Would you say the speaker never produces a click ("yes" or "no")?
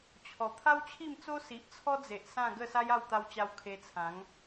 yes